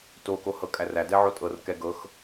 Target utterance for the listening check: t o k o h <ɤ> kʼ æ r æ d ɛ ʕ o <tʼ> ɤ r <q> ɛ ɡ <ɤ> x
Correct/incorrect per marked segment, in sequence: correct, correct, incorrect, correct

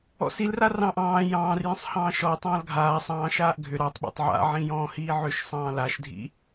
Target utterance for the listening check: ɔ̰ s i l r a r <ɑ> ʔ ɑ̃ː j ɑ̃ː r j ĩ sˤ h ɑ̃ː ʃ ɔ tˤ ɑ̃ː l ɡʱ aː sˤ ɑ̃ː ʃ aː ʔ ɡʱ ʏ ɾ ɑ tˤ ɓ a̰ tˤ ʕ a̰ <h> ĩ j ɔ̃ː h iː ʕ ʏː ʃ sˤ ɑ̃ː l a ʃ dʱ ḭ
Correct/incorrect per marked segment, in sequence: incorrect, incorrect

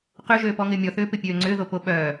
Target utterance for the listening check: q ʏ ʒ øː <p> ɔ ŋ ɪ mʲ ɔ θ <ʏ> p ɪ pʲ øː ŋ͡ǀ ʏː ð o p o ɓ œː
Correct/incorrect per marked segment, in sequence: correct, incorrect

